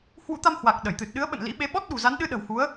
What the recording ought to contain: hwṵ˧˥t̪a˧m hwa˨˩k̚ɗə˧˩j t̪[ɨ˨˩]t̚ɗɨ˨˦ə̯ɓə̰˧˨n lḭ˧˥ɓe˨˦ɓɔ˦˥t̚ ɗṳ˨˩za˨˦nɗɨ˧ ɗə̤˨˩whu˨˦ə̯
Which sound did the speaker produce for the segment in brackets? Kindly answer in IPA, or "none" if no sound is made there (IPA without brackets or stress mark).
ɨ˨˩